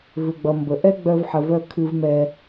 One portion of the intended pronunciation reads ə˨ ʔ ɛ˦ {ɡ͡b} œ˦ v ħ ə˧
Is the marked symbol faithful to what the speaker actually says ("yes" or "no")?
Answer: yes